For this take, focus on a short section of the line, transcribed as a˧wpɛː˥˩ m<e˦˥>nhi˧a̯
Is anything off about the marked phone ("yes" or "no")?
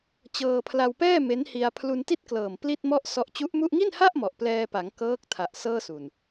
no